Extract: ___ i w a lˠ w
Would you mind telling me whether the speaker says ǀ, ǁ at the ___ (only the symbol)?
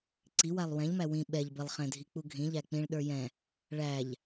ǀ